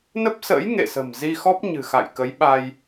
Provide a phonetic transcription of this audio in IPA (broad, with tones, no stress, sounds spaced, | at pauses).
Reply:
n ə˦˥ p̚ s ə̰ː˧˥ j ŋ ḛ˧˨ s ə̤˨˩ m z i˧ x ɔ˦˥ p̚ ɲ ɨ̤˨˩ x a̰˧˨ j k ə˨˦ j ɓ a˧ j